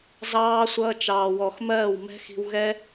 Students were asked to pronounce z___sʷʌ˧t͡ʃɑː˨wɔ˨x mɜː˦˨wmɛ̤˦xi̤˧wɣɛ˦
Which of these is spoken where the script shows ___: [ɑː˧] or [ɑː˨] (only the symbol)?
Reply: ɑː˧